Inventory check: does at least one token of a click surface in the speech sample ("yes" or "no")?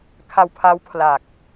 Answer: no